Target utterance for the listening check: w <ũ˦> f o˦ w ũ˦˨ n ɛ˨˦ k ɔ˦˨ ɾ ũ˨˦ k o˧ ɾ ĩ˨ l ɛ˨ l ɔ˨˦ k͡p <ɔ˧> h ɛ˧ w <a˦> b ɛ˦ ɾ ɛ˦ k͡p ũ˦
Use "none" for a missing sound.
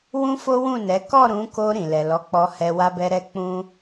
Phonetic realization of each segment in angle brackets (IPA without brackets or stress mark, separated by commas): ũ˦, ɔ˧, a˦